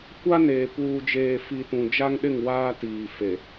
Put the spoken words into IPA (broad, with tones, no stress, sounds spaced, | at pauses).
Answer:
kʷ a˦ n eː˨ p uː˨ d͡ʒ eː˨ f i˨ t ũ˨ d͡ʒ a˦ ŋ ɗ ɪ˦˨ ŋ w aː˦ t iː˨ f e˨